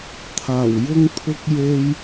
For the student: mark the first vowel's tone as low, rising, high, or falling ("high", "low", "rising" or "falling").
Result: low